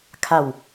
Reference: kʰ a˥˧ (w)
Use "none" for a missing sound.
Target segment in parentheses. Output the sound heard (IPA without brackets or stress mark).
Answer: w